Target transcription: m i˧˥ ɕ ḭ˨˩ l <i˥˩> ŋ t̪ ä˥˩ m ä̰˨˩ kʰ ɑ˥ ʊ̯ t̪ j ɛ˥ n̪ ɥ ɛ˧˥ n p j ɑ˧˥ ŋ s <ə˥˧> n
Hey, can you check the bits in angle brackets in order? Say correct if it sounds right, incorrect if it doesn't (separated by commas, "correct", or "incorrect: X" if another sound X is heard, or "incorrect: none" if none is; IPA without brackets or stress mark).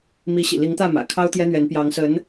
incorrect: i˧˥, incorrect: ə˧˥